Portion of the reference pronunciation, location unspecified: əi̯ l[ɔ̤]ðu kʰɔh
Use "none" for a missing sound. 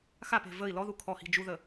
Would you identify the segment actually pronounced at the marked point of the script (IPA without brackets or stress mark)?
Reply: ɔ